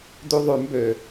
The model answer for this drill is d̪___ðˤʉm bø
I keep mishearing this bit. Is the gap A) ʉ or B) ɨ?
A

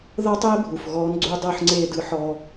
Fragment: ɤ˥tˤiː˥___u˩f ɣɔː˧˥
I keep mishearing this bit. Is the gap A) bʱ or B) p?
A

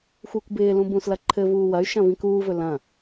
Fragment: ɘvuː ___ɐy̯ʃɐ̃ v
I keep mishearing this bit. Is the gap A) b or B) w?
B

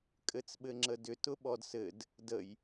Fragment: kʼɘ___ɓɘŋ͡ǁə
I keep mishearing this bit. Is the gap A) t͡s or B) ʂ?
A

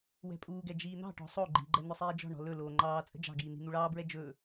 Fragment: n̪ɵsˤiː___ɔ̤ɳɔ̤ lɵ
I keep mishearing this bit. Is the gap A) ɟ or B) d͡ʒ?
B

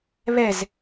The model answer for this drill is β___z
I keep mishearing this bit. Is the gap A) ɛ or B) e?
A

